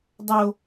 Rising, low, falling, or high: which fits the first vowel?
high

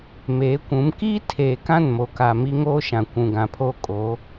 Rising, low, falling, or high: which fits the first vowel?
rising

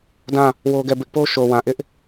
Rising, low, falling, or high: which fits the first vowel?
falling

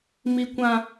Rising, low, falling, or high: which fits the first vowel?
high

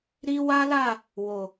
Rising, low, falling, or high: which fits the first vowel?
high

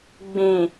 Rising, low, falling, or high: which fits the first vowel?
low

